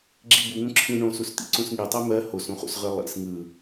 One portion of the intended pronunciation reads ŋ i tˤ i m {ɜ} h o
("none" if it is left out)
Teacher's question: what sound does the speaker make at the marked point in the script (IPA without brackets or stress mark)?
ɜ